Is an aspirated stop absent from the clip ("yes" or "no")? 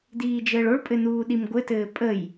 yes